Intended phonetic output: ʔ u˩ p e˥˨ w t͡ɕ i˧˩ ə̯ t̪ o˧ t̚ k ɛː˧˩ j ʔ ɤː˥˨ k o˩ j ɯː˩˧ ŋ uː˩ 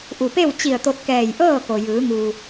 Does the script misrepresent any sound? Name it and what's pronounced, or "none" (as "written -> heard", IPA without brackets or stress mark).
none